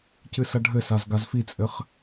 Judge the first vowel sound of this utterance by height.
high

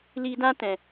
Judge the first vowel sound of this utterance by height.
high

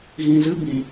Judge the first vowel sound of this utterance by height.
high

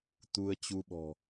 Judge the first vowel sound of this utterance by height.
high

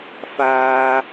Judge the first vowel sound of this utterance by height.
low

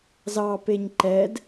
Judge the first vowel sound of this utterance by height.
low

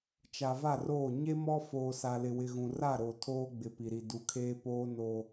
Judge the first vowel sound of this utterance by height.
low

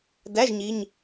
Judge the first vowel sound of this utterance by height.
low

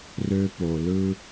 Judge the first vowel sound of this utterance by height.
mid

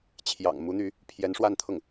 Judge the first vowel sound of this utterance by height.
low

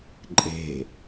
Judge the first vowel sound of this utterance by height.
mid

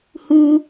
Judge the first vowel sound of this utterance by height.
high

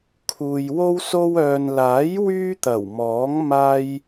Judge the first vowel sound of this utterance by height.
high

